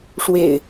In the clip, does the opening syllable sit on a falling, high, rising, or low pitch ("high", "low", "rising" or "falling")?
low